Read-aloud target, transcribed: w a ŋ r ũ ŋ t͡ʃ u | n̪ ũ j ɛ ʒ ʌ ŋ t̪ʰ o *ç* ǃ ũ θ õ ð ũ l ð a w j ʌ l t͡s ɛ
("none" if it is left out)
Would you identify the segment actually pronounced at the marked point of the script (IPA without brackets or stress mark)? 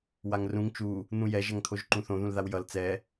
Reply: ʒ